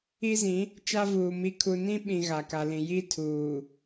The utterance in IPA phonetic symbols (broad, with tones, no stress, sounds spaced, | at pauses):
i˦ z ĩ˨˦ | t͡ʃ a˦ v uː˨ m i˦ kʰ u˦ n ĩ˦ ɓ ĩ˨ ɣ a˨ k a˨ l ĩ˨ j i˦ tʰ uː˨